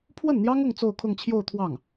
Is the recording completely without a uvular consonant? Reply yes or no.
yes